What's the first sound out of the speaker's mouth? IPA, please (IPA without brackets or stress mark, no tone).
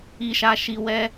i